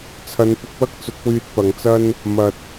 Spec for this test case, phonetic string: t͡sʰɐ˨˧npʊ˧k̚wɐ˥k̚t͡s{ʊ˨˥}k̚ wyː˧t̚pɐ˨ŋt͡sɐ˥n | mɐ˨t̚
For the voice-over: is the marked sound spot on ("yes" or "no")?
yes